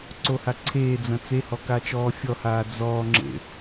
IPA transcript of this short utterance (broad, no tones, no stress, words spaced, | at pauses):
ǀohaǀʰeːd͡zɐ̃ t͡sehɔ kat͡ʃɔːfʲɔhaː d͡zɔːŋ͡ǁḛ